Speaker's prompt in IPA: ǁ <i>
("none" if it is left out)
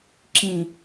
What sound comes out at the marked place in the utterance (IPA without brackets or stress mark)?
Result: ĩ